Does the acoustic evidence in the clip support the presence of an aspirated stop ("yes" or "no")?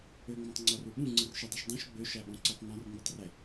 no